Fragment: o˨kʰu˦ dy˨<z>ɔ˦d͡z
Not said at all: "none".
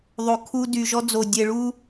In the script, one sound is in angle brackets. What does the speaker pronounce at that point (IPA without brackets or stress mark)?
ʒ